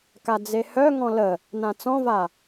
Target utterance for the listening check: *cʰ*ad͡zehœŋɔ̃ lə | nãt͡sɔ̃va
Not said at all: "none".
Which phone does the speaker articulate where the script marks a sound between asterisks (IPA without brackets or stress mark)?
k